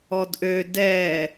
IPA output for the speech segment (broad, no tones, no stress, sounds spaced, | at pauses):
ɔ d ʔ ø d ɛ